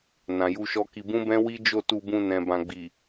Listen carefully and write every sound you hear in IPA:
n ã˨ j u˧ ʃ ɔ˦ k i˧ b ũ˦ b ɛ̃˦ w i˦ d͡ʒ o˦˨ t u˧ b ũ˧ n ɛ̃˨ b ã˨ ɡ͡b i˨

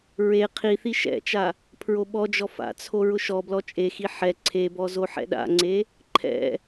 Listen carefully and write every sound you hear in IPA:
ɹ e qʰ i θ i ʃ ɛ̰ t͡ʃ a | pʰ ɹ o ɓ ɔ d͡ʒ ɔ f a̰ t͡sʰ o ɹ ʊ ʃ ɔ b l ɔ t͡ʃʼ e x i ħ ɛ ǀʰ e b ɔ z o ħ ɛ̰ ɗ a̰ ŋ͡ǀ e | ǃʰ ɛ̰

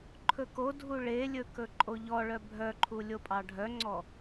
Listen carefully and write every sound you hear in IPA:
ǃʰ ɵ k o dʱ u ɭ e lʲ ɵ k ɵ ǃʼ o ʎ ɔ ɭ œ bʱ œ ǃʰ u lʲ o pʼ ɑ ɖʱ œ ŋ͡ǀ ɔ

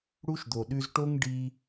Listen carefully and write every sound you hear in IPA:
ɽ u˦ ʃ d̪ o˨ ɗ ʉ˧ z ʈ o˦ ŋ ɖ i˧

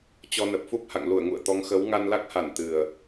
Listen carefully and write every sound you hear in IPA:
t͡ɕ ɔ˧ n ə˨˩ p̚ f u˦˥ p̚ h a̰˧˨ ŋ l u˧˩ ə̯ ŋ ṵ˧˨ ə̯ t̪ ɔ˨˦ ŋ x ə˨˦ w ŋ a˧ n l a˦˥ k̚ h a˧˩ n t̪ ɨ˨˩ ə̯

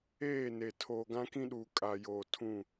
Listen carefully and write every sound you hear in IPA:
eː˦˨ n e˨ tʰ oː˨ ɡ ã˦ k ĩ˦ ɗ uː˨ kʼ a˨ j oː˨ tʰ ũ˦˨

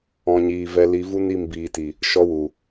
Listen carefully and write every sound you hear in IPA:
ɔ̃˨ ɲ iː˨ v ɛ˧ l i˨˦ v u˦ n i˦˨ m b iː˨ t i˨ | ʃ ɔ˧ w u˨

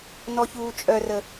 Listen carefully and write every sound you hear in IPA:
n ɔ ç uː t͡ʃʼ œ r ə

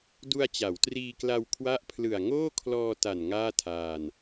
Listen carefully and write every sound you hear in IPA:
d u˧ a̯ t͡ɕ a˩˦ w t r iː˧ k l a˧ w kʰ w a˦˥ ʔ pʰ l ɯ˨˩ a̯ ŋ oː˥˩ kʰ l ɔː˧ t a˨˩ n ŋ aː˥˩ tʰ aː˧ n

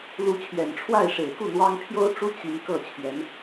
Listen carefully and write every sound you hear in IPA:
l u˧˥ t͡ɕʰ ɥ ɛ˨˩ n ʈ͡ʂʰ w a˥˩ ɪ̯ ʂ e˨˩ ɪ̯ k u˥˩ n̪ w ɑ˥ ŋ pʰ j o˥ ʊ̯ ʈ͡ʂ u˥ t͡ɕ i˧˥ ŋ k ɤ˥˩ t͡ɕʰ ɥ ɛ˧˥ n

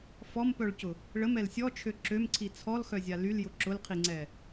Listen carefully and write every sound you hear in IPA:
f ɔ m p œ ɭ c ʊ | ɭ ə m ɛ l sʲ ɔ t͡ʃʰ ø ǁ ø m ǀʰ i t͡sʰ ɔ l x œ zʲ a l y l j ʊ ǁ ʊ l qʰ i ŋ͡ǀ ɛ

